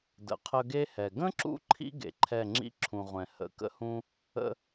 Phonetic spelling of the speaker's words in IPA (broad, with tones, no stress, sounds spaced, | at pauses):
d ə̰˨ qʰ ə˧ ɡ e˦ h ɛ˨ ɡ ə̃˦ ǁ ṵ˧ ǃʰ ḭ˧ ɡ ḛ˨ ǃʰ ɛ˦˨ ŋ͡ǁ ḭ˦ ǁʰ ũ˨ ʁʷ ɛ̃˨ h ə̰˨˦ k ə̰˧ h ũ˧ | ə̰˧